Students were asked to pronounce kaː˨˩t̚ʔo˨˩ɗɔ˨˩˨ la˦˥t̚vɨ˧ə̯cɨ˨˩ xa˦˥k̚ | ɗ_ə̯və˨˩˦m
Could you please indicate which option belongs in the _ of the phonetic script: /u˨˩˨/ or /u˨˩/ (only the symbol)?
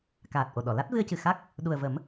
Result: u˨˩